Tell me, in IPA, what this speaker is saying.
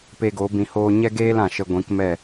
p e˧ ɡ o˨˦ b ĩ˧ h oː˦ ɲ ɛ˦ ɡ eː˦ l ã˨ ʃ ə˧ ɡʷ ĩ˨˦ k m ɛ˦˨

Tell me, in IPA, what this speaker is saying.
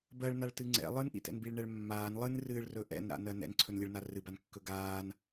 b ɜ ɭ n a ɭ t ɨ ŋ͡ǀ ɛ̰ lˠ ɨ n ʔ ḭ t ɛ̰ n b i ɭ ɳ ɛ ɭ mː aː n lˠ ɨ n r ɨː ɭ r ɵ ʔ ɛ̰ n ɾ a̰ n ɜ n ɛ̰ n ǀʰ ɵ n lʲ ɨ ɭ n a r ɨ b a n kː ɵ ɡ aː n

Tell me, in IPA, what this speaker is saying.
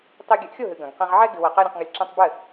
tˤ i˧ ɡʲ ɨ˨˦ ʔ xʲ o˦˨ ɦ ɨ˨ ɡ ɐ̃˨ ɡ q ẽ˧ ʁ ʕ ɛ˦ ɡ ɨ˧ w ɐ˧ q ɛ˦ ɾʲ ɐ̃˧ q ŋ ɐ˧ lʲ ǁ ẽ˦ tˤ b ɘ˦˨

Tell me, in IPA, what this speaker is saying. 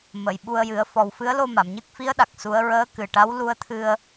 m ə˨˩˨ j ɓ u˧ ə̯ j ɨ˨˩˦ ə̯ f ɔ˨˩ w f ɨ˧˥ ə̯ l o˧ m a˨˩˨ m ɲ ɨ˦˥ k̚ f i˧˥ ə̯ ɗ a˨˩ k̚ s u˧˥ ə̯ ɹ əː˧˥ k ɨ˨˩ ʈ a˧˥ w l u˧ ə̯ t̪ʰ ɨ˧ ə̯

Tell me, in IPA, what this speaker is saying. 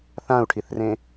θ ã u̯ ʈʰ i θ r ẽ

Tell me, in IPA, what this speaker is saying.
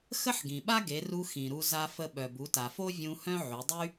x ə˥ ħ ɡ ĩ˩ ɓ a˥ ɡ e˩˧ r u˧ x ĩ˩ ɾ u˧ z a˧ f ə˧ ɓ œ˩ b u˩˧ t a˩ f o˥ vʲ ũ˧ h œ̃˥ ʕ y˩˧ dˤ y˥

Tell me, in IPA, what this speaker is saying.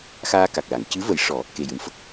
x aː˧ k a˨˩ k̚ l a˨˩˨ ŋ c ɨ˧˥ v ə˨˩˦ j ʂ ɔ˨˩˦ | k e˨˩ j ɨ˨˩˨ m f ə˦˥ k̚

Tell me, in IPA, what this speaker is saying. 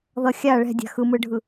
ð ʌ xʲ a ɭ ɛ̤ dʲ a̤ x ɯ m ɯ ɖʱ ɯ

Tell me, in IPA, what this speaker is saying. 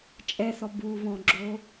t͡ʃʼ ɛ θ ɔ b u β ɔ̃ ɡ͡ǁ o

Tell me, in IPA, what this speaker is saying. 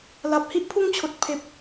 l a˨ p̚ h i˦ ʔ pʰ u˥˧ ŋ t͡ɕʰ o˨ t̚ pʰ e˨ p̚

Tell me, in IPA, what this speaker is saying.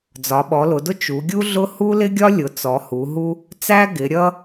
d͡z ɒ˩˧ ɓ ɔ˩˧ l ʊ˩˧ d ʊ˦ t͡ʃ u˩˧ ɡʲ u˦ ɮ ʊ˦ h u˦ l ɪ˦ ɡʲ ɒ˦ lʲ ʊ˩˧ t͡s ɔ˩˧ h u˩˧ ɦ u˦ | t͡s æ˦ ɡ ɪ˩˧ ɾʲ ʌ˦

